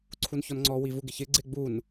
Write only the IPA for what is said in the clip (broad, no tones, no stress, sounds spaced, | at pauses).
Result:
ǀʰ u n ç ɔ n ŋ͡ǀ ɔ w i v u ɡ ɪ ç ɪ ɡ͡ǀ ɪ ɡ͡b u n